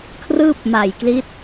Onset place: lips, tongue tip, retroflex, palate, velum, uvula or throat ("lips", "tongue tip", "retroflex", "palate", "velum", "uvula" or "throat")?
velum